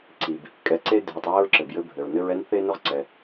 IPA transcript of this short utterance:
ǀi˩b | kʼɛ˨ǀe˥ dʱe˨tˤɹɘ˥ɹǁɘ˩bjɘ˦ bʱɘ˩ɹnɘ˦ɹɛ˥n θe˥nʊ˥ʁǀɛ˩

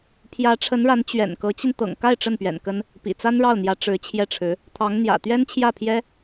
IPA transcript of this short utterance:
pʰjä˧˥ʈ͡ʂʰə˧˥nɻa˧˥n t͡ɕɥɛ̰˨˩nkɤ˧˥t͡ɕi˧n t̪ɤ̰˨˩ŋka˥˧ɪ̯ ʈ͡ʂə˥˩npɥɛ̰˨˩nkə˥n | pḭ˨˩t͡sa˥nɻɑ˥˩ʊ̯n̪jä˧˥ ʈ͡ʂɻ̩˧˥t͡ɕʰjɛ˥˩ʈ͡ʂʰɻ̩˧˥ | t̪ʰɑ˧˥ŋn̪jä̰˨˩ t̪ɥɛ˥nt͡ɕʰjä˥˩pʰjɛ˥

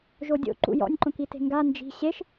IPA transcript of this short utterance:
ʒodʲo̰ ǃṵjɔ̰nʲǃõki te̤ŋɡa nd͡ʒi̤ ɕeʃ

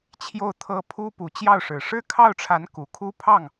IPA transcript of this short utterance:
t͡ɕʰjo˥˩ʊ̯t̪ʰɤ˥ pʰu˥ pu˧˥t͡ɕjɑ˥˩ʊ̯ʂɻ̩˨˩ ʂɻ̩˥kʰɑ˥˩ʊ̯ʈ͡ʂʰa˧˥n ku˨˩kʰu˥pʰɑ˥˩ŋ

